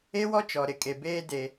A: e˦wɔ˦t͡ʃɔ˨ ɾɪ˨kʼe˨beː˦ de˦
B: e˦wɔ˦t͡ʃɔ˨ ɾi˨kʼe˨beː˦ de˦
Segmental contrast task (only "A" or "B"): A